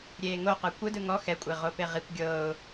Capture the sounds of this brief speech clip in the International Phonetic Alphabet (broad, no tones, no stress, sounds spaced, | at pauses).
ɾʲ eː ŋ o q ɯ kʷ ɯ d ɯ ŋ ɔ x ɛ kʷʼ e ʁ o p e ʁ i kʷ ɡʲ ɤː ʊ̯